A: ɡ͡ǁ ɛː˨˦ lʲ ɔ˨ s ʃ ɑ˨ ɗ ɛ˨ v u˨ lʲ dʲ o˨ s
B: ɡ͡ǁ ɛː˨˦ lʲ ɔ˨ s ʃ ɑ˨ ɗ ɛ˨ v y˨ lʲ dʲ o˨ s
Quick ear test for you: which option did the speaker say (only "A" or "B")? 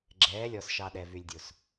B